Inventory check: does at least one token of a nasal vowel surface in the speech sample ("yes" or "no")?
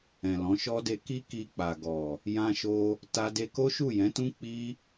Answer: yes